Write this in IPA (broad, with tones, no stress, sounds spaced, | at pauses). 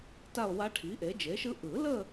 t a˥˧ o̯ w a˦˥ ʈʰ i˩˥ ʔ e˩˥ d͡ʒ e˩˥ ʃ ɯ˦˥ ʔ ɯ˨˩˦ l ə˥˧